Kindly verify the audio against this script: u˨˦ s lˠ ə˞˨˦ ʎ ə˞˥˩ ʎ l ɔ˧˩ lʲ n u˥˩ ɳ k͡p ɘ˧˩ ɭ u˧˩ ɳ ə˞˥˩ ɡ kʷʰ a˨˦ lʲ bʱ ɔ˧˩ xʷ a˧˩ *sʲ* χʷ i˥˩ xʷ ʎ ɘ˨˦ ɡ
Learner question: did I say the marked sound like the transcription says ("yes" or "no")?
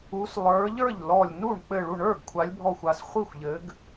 no